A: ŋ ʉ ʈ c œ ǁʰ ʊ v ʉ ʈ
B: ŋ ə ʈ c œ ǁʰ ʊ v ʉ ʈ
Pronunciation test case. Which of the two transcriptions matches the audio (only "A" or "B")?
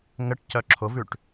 B